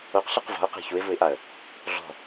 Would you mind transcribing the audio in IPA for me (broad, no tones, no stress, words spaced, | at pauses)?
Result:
oqɬɯq vɔ̤ʊ̯qe̤ çuɪ̯vuɪ̯ʔaə̯ | ɮɔ̤